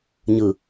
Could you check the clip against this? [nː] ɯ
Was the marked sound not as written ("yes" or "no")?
yes